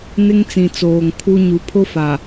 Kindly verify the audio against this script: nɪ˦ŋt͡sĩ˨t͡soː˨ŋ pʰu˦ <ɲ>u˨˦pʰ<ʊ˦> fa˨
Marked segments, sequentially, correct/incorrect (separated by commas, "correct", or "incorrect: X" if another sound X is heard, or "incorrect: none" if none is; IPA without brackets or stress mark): correct, correct